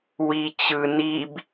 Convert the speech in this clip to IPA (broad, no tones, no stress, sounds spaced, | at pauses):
w i t͡ɕ ɯ n i b